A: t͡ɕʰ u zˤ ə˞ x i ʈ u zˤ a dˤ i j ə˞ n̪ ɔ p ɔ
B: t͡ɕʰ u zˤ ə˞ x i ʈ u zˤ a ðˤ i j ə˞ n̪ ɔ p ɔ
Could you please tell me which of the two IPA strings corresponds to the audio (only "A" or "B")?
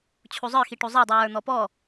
A